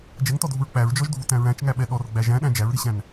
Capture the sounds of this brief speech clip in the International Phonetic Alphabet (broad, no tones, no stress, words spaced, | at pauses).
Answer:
d͡ʒɛŋtɔdʱuɹ k͡pæɹd͡ʒɔʒdʱutæ̃ ɹæ̃t͡ʃŋæɓɛ ɗɔrɡ͡bæ ʒæ̃ɗæ̃ d͡ʒæɹɾiɕæ̃n